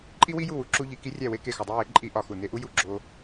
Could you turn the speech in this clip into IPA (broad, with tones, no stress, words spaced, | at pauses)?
ǃʼi˦wi˦ju˦˨wu˧ ǁu˧ʎi˨ ki˦rʲæ˦˨we˦ ke˦˨xɒ˧dˤi˦ we˨˦ǃʼi˧ ʔɒ˧xu˨ ne˧ʔu˦ju˦˨ ɡ͡ǁo˦